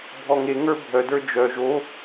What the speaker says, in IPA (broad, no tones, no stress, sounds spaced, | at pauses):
bʱ ɔ ŋ e ŋ ə˞ bʱ œ d ə˞ d͡ʒ œ ʒ o